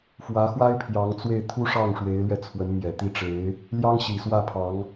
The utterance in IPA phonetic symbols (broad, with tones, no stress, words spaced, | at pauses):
fwä˧˥xwa˥ɪ̯ pʰjɑ˧˥ŋt͡swe˥˩ɪ̯ t̪ʰu˥ʂɑ˥˩ŋ ʂwe˧˥ɪ̯lɥɛ˧ t͡sʰwə˧˥nmjɛ˨˩t̪i˥˩ʈ͡ʂe˧˥ɪ̯ | ljɑ˥ŋɕi˨˩swä˥˩ pʰɑ˧˥ŋ